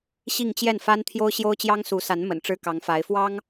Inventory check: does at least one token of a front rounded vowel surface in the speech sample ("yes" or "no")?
no